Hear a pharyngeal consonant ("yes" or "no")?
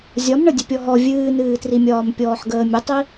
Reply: yes